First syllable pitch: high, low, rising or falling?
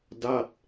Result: falling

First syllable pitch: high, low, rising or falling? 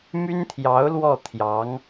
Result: high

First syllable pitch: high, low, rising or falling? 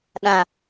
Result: low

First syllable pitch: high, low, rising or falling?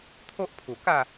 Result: high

